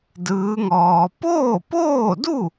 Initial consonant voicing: voiced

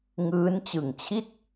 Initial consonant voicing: voiced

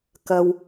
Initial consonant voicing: voiceless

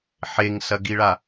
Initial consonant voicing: voiceless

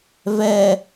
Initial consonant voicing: voiced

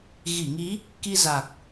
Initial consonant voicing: voiced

